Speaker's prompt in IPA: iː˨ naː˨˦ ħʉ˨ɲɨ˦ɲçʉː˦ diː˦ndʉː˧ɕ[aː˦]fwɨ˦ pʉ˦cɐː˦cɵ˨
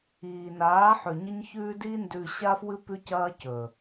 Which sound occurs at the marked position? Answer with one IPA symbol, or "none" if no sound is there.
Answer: aː˦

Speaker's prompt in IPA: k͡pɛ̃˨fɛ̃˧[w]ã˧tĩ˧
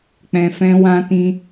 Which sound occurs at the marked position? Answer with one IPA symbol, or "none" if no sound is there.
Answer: w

